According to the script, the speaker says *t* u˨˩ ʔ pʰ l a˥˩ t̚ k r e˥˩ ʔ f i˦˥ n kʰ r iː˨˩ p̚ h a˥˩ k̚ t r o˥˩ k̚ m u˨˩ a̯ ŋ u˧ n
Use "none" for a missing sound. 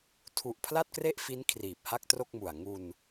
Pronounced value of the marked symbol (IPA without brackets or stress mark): tʰ